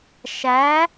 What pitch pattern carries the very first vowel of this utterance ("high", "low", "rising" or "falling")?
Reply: rising